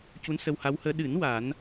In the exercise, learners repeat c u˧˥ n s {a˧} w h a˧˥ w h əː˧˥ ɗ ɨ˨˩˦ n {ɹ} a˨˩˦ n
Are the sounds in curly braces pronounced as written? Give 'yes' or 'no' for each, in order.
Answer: no, no

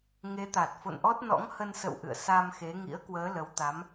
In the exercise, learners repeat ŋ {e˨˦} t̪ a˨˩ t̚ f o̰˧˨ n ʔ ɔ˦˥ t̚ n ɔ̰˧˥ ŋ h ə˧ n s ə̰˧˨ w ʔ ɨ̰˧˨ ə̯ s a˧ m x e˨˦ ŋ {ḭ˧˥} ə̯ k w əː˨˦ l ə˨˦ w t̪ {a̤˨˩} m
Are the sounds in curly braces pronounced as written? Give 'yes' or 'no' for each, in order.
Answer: yes, yes, no

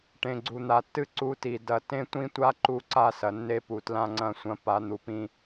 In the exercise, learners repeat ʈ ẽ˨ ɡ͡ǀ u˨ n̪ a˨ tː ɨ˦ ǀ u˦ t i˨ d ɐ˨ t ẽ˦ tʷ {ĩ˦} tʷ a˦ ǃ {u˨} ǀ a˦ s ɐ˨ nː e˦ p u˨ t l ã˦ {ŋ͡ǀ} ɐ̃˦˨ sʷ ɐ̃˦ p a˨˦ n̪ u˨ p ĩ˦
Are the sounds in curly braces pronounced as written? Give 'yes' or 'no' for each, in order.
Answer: yes, no, yes

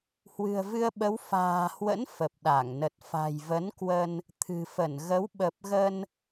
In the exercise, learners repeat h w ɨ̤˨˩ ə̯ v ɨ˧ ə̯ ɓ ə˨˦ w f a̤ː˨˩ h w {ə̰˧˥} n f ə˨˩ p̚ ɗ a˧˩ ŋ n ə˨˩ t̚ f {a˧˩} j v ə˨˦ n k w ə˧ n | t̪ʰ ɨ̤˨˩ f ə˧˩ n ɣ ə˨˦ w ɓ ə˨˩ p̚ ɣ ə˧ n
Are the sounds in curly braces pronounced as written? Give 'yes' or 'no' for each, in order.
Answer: yes, no

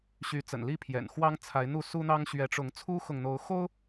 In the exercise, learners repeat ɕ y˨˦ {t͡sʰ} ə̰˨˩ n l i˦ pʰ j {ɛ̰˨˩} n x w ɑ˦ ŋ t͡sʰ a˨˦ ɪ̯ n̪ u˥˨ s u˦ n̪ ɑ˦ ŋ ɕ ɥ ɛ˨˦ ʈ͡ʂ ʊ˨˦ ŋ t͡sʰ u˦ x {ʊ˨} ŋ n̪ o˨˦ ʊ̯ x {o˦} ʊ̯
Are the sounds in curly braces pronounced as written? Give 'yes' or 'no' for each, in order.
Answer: no, yes, yes, yes

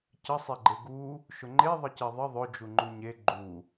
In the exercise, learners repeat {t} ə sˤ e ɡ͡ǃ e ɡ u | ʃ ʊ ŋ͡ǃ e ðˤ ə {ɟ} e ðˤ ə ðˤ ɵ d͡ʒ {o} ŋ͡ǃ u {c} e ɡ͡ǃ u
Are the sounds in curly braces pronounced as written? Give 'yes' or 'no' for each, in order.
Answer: no, no, no, no

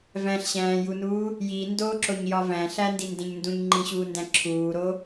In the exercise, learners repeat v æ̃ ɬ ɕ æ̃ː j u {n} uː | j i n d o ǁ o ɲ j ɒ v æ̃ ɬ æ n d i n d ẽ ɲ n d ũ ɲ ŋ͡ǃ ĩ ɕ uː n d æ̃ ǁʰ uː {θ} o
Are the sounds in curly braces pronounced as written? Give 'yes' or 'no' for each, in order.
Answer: yes, no

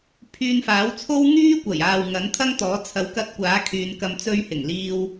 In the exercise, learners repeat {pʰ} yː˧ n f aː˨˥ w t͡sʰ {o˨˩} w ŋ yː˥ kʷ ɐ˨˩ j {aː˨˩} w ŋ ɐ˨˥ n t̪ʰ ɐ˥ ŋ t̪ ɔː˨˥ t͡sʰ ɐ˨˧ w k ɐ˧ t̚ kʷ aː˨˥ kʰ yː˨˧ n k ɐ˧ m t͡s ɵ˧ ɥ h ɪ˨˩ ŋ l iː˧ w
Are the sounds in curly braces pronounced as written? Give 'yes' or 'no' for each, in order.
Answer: yes, no, no

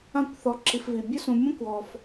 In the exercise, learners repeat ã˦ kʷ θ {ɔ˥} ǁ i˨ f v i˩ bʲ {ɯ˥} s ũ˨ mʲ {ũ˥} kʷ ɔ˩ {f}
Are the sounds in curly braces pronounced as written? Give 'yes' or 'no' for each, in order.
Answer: no, no, yes, yes

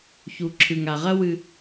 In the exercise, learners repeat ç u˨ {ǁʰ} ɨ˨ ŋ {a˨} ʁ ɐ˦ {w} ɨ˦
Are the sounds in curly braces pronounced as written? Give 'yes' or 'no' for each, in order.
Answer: yes, yes, yes

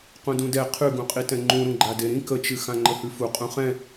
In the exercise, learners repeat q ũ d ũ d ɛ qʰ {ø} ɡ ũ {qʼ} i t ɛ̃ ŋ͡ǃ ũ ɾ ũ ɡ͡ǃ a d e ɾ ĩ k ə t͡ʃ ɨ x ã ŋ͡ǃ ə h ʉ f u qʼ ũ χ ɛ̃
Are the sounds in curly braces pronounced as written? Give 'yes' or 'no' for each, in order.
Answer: no, yes

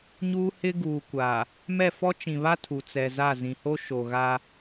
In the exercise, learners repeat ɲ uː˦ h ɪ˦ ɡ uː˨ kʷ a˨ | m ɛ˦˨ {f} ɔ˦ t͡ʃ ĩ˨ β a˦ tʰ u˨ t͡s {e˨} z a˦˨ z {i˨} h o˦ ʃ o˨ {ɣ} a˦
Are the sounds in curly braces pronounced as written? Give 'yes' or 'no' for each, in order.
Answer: yes, no, no, yes

